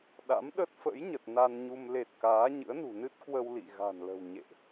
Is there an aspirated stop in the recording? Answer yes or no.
no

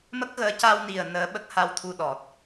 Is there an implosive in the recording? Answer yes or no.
yes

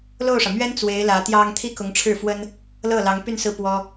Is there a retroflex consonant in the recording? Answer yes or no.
yes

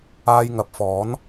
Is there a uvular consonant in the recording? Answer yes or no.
no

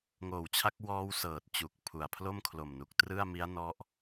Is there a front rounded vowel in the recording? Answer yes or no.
no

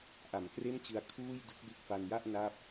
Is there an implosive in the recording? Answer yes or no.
no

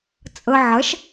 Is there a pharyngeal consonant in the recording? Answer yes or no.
yes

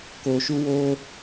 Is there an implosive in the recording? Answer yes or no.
no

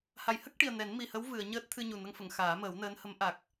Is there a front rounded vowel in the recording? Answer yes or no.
no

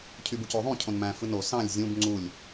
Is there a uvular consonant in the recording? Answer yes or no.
no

